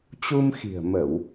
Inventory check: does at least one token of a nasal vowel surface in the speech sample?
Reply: no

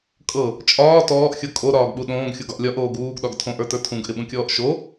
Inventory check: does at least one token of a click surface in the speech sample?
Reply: no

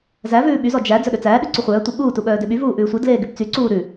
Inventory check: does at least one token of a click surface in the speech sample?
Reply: yes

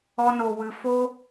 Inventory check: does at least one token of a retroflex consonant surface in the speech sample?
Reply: no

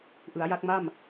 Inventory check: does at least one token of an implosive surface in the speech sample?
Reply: no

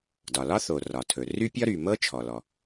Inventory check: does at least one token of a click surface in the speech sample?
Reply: no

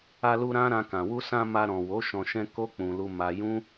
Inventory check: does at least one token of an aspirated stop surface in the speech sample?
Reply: no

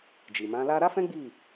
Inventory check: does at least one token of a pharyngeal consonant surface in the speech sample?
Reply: no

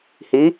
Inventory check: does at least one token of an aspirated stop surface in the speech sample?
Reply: no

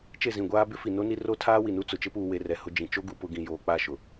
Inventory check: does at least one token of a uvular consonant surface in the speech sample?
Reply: no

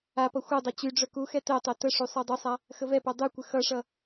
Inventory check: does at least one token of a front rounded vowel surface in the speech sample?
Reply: yes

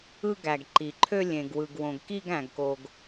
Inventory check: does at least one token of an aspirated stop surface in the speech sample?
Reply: yes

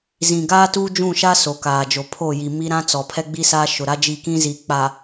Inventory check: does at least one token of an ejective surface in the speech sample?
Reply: no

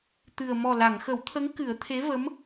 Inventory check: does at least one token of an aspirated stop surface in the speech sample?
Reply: yes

